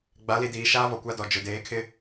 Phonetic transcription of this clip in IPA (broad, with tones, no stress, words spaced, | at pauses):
ɡ͡ba˨˦li˨diː˨ʃaː˦ vɔ˨kʷa˦dɔ˨ d͡ʒʊ˨deː˨˦kʰɪ˦